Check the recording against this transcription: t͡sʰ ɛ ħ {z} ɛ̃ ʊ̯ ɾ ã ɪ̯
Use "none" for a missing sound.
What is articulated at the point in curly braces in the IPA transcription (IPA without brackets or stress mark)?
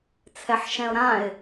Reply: ʃ